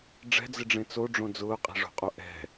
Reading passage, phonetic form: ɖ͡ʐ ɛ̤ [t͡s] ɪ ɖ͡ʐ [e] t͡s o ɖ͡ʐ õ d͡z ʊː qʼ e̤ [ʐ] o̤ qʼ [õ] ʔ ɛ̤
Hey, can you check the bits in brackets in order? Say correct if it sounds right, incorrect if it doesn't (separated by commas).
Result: incorrect, incorrect, correct, incorrect